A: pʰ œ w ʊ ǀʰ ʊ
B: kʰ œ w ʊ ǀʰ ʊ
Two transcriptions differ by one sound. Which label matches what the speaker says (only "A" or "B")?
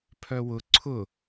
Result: A